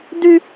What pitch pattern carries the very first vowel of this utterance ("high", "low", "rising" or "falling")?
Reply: high